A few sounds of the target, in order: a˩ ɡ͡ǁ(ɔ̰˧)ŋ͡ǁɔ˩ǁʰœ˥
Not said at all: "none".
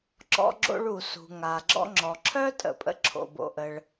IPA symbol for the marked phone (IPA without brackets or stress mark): ɔ̰˧